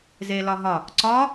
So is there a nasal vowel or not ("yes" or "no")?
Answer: no